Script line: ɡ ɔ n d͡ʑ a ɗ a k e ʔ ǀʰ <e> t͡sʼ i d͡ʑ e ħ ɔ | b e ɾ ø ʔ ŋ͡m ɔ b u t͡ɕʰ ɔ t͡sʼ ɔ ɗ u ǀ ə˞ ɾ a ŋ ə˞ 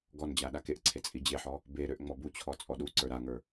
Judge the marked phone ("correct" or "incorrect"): correct